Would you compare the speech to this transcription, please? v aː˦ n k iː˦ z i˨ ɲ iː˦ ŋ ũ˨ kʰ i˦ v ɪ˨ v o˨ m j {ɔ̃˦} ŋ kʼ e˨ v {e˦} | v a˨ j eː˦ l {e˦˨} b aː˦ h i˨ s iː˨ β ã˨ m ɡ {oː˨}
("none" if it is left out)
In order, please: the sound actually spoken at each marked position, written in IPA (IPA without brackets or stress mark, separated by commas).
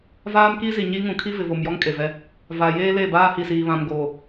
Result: ɔ˦, ɛ˦, e˦˨, oː˨